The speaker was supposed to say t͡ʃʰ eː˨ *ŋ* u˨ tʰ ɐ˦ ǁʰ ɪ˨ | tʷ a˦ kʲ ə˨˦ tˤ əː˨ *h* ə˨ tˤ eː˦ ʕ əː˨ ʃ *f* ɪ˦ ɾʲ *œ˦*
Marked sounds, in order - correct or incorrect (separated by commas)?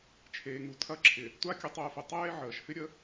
correct, incorrect, correct, incorrect